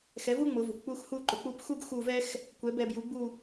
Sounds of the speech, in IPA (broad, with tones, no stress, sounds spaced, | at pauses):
x ɛ˩˥ v u˥ ŋ͡m ʊ˩˧ v ʊ˩ kʷ k͡p u˦˨ x h u˦˨ ǃ ʊ˩ k͡p u˦˨ p x u˥ ɡ x u˦˨ v ɛ˥ x | kʷ ɛ˩˥ b ɛ˩˧ b j u˩˥ ɡ͡b u˦˨